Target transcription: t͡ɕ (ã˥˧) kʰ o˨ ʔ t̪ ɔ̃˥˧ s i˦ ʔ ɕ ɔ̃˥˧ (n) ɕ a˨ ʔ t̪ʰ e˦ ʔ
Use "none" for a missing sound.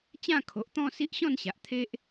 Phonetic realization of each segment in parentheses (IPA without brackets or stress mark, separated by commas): ã˥˧, n